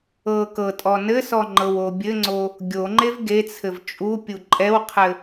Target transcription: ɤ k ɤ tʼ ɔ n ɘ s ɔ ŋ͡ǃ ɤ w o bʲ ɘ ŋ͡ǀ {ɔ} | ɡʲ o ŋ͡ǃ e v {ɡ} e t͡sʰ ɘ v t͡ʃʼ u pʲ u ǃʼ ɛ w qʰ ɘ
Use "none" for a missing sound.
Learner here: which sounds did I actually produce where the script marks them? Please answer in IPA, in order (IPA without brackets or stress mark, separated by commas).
o, ɡ